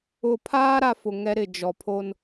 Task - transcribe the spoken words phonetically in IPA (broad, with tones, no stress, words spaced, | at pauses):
ʊ˨pʰaː˦ ɾa˦fʊ˨ ŋɛ˦ɾɪ˨ d͡ʒɔ˨pʰo˦n